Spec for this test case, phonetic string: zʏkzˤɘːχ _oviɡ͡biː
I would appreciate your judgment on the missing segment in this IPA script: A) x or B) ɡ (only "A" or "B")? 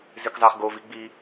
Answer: B